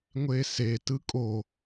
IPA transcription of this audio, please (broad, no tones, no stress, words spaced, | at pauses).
ŋʷese tɯkʼo